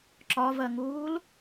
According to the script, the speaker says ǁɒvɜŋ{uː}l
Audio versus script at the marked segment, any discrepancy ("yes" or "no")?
no